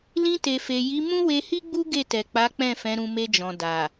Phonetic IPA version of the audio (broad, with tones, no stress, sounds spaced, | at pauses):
l ĩ˧ t e˨ f e˨ j i˨˦ m ũ˦ w e˧ h i˦ ɡ͡b u˦ ɡ e˦˨ t ɛ˨ k͡p a˨˦ k͡p ɛ̃˦˨ f ɛ̃˨˦ ɾ ũ˧ m e˧ d͡ʒ ɔ̃˨ d a˨